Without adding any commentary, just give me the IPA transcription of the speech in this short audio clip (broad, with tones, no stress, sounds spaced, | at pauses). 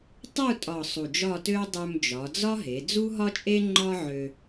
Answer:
tˤ u˥˧ tʼ ɒ˨˩ sˤ u˨˩ d͡ʒ ɒ˥˧ t ø˥ ʊ̯ dˤ ø˧ m d͡ʒ ɒ˩˧ d͡z ɒ˥ ɦ e˩˧ d͡z u˥ ɦ ɒ˥ t͡ʃʼ e˥ ŋ͡ǃ ɒ˥ ʕ ø˧